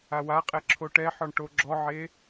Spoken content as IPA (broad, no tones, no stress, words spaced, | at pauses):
awaqʼɛ ǁʰoʈɛħɔɳ ʈoɡ͡ǁɔʕe